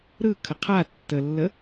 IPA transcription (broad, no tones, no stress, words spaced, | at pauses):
ɾɯkʰə qʰa tːəlːə